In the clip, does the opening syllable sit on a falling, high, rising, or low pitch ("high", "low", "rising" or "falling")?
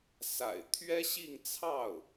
low